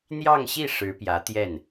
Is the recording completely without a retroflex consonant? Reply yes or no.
no